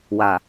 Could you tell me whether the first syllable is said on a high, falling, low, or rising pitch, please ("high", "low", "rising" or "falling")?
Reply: low